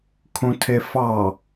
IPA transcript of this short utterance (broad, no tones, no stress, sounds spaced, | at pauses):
kʰ ũ tʰ e f ɑ